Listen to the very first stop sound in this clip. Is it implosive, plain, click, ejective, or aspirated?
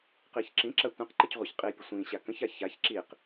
plain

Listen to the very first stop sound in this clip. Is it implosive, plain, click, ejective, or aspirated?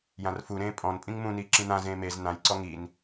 ejective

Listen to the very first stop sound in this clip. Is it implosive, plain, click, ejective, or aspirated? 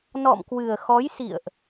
plain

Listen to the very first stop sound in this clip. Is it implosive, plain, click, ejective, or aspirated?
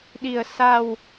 implosive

